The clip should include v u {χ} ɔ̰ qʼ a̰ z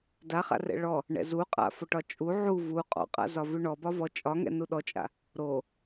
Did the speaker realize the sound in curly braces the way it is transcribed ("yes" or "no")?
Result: no